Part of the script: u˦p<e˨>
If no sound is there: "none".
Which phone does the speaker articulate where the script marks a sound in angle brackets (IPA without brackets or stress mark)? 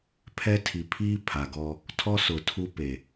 e˨